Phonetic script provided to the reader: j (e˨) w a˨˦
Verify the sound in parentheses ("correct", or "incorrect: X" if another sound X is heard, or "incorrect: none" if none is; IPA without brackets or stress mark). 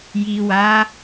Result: incorrect: i˨